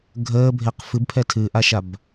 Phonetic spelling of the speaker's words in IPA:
ɡʱəːbʱeq fɨbpʰɛ tʰɨʔaʃab

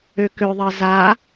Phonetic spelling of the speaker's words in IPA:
økøðˤɜ za

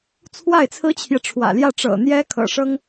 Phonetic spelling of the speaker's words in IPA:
t͡sʰwa˥˩ɪ̯t͡sʰɹ̩˥t͡ɕʰjɛ˨ʈ͡ʂʰwä̰˨˩ ljä˥˩ʈ͡ʂɤ̰˨˩n̪jɛ˥ kʰɤ̰˨˩ʂɤ˥ŋ

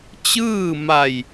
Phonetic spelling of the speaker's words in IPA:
t͡ɕɯː˥˨ma˧˩j

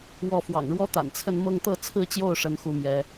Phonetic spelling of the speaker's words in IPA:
wɔ˥˩ fwɑ̰˨˩ŋɻwɔ˥t̪a̰˨˩nt͡sʰə˥˧n mɤ˥˧ŋt̪ɤ˥˧ t͡sʰɹ̩˥˧t͡ɕjo˥˩ʊ̯ ʂə˥nxu˥˩mjɛ˧˥

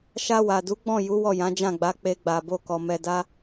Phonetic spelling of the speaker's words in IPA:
ʃa˧wa˨du˨˦ ɡ͡bɔ̃˦˨ju˨˦ wɔ˦˨jã˨˦ d͡ʒã˦˨ɡ͡ba˨˦ k͡pe˧ɡ͡ba˨bo˧kɔ˨ mɛ˨da˧

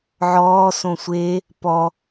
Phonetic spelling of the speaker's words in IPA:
ʕɔːsõ sʷe | pɔ

